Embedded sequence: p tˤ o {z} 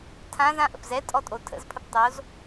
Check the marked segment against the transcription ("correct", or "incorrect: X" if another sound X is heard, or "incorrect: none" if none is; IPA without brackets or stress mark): correct